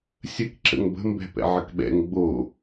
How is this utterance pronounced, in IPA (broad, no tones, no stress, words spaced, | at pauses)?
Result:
sʲək ǁə̰ŋbə̤mbɛ̤ pɛ̰ʕəkɓɛ̰ŋ ɡ͡bo